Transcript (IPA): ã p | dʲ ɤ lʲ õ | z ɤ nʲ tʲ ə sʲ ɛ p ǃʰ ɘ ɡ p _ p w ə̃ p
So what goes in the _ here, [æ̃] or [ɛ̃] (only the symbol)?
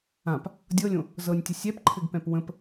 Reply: ɛ̃